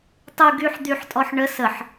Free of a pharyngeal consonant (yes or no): no